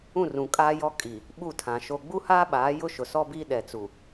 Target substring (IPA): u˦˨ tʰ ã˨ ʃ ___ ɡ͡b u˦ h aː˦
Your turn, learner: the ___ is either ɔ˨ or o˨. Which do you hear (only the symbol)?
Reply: o˨